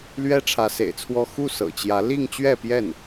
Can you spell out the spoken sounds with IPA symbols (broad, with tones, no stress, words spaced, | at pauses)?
lɥɛ˥ʈ͡ʂʰä˧˥sḛ˨˩ɪ̯t͡sʰwɔ˥˧ xu˥˩sɤ̰˨˩t͡ɕjä˧˥ li˥˧ŋt͡ɕɥɛ˥˧pjɛ˥˩n